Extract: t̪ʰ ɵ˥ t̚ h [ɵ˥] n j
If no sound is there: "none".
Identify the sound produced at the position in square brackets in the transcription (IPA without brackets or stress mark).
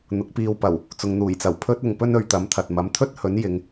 ɵ˨˥